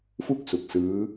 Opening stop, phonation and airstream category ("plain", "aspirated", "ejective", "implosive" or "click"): plain